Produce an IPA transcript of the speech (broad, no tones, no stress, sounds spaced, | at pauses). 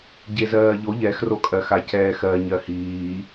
ɟ e z ɜː ʎ o ʎ ɛ x r o kʼ ɜ x a c ɛː x ɜ ɲ ɜ h iː